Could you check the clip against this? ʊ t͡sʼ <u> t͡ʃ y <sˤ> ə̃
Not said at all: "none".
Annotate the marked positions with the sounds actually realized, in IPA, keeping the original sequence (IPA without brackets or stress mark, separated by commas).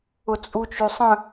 u, sˤ